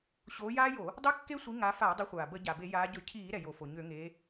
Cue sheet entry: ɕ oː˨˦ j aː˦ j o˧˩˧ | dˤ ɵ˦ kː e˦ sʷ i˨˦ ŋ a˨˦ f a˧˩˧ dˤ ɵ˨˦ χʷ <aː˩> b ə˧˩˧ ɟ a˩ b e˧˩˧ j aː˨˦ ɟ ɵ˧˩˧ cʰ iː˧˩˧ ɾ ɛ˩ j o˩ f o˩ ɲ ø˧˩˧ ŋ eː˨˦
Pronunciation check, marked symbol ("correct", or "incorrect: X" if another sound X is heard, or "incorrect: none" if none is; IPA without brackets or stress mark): correct